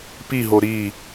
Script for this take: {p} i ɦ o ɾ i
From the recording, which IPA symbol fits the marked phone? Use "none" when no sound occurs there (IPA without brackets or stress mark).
p